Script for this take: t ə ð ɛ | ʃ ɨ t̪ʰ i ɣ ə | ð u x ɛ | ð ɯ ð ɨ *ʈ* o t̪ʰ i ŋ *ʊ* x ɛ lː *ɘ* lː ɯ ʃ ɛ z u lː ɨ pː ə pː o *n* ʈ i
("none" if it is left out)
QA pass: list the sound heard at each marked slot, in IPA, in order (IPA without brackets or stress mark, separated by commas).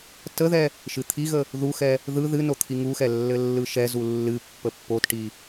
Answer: n, u, ɘ, t